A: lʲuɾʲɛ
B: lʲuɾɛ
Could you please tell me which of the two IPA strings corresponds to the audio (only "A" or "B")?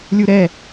B